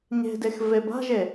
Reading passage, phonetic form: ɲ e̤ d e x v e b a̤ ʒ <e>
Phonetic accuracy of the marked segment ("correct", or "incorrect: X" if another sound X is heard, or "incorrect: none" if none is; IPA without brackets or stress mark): correct